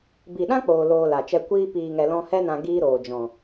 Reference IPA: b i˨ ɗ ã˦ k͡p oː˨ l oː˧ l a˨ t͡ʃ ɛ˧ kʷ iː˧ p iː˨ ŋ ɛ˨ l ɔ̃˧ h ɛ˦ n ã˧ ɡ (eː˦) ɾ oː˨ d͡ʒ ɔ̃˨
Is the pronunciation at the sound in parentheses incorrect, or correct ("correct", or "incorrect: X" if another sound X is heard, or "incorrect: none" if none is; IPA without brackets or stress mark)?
incorrect: iː˦